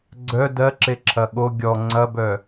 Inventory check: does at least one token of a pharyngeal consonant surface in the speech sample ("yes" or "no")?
no